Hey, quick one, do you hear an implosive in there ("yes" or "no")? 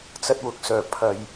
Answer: no